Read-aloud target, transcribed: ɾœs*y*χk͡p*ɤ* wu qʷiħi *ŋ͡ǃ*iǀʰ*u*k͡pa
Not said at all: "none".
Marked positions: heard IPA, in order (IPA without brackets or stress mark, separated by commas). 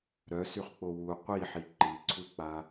y, o, ǃ, u